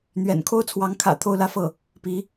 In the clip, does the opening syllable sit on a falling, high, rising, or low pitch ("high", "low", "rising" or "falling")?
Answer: low